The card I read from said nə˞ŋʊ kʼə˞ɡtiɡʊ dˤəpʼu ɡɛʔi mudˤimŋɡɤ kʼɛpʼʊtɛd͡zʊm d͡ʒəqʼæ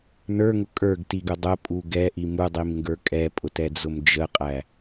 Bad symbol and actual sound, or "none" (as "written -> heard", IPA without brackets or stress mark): ɤ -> ə˞